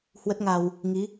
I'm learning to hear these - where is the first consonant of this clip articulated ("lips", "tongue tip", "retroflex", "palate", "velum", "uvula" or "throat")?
throat